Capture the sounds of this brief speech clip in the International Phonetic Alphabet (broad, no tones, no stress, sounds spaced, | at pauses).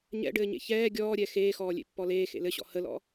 ɲ ɛ̰ ɖ ɘː ɲ ḛ ç ɛː ɡʲ ɔː ɾʲ ɛ x eː x ɔː lʲ ḛ pː ɔ l eː x ḛ l ɘ ɕ ɔ̰ h ə l ɔ̰